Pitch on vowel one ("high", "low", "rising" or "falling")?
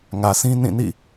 low